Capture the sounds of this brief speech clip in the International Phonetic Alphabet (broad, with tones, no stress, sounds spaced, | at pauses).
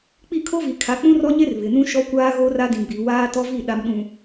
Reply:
k͡p i˦˨ kʰ o˦ v i˨ kʰ a˨ k͡p ũ˦ r ɔ˦ ɲ e˦ r β ɪ˨ n ũ˦ ʃ ɔ˦ kʷ aː˦ ɣ o˦ r a˦ d ĩ˨ ɡ͡b i˨ w aː˦ t ɔ˦ v i˦˨ ɗ a˨ m ɗ ũ˨